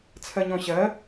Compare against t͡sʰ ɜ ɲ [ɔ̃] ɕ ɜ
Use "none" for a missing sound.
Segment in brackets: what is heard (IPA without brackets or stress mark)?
ɔ̃